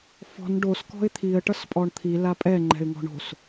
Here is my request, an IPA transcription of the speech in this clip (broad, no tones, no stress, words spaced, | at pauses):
fɔ̤n ɖos kɔ̤ɪ̯t̪ʰiə̯ ʈʌspʼɔɳt̪ʰi lapʼɛ ŋ͡ǃɛ̤ɪ̯ŋɔ̤ɳo̤s